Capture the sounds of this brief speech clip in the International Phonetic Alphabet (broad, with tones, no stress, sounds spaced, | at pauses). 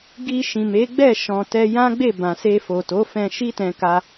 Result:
ɡ i˧ ʃ ĩ˨ m e˨˦ ɡ͡b ɛ˦˨ ʃ ɔ̃˨ t ɛ˧ j ã˦ ɡ͡b e˦˨ b ã˨ s e˧ f o˨ t o˨˦ f ɛ̃˧ ʃ i˦ t ɛ̃˧ k a˧